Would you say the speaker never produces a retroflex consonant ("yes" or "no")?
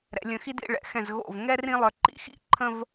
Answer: no